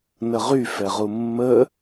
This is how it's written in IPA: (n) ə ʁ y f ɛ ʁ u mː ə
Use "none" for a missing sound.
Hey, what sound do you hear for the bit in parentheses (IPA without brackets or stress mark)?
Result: n